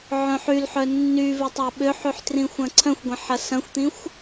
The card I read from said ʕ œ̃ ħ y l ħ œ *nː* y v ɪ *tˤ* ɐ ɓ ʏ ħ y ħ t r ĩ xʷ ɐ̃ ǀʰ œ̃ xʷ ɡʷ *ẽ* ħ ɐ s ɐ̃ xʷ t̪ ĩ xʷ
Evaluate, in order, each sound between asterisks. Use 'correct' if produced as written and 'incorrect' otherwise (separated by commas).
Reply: correct, correct, correct